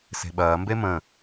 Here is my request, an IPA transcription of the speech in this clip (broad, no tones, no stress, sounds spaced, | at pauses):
s e̤ ɓ ɐː m b e m ə̃